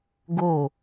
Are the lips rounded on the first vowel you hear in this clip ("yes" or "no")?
yes